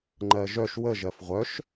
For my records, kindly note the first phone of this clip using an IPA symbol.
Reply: ŋ͡ǃ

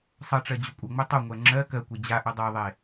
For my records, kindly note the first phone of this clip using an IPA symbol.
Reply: sˤ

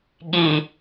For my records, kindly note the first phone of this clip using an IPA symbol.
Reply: ɠ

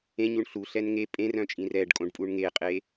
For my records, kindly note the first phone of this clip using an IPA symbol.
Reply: ẽ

